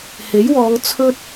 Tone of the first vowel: rising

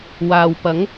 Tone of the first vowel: low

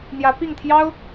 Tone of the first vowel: rising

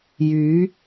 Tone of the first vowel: rising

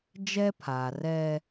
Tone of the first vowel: high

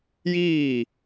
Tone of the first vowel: falling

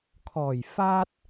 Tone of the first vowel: low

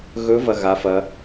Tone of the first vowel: rising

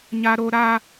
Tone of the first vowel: high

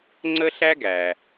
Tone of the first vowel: high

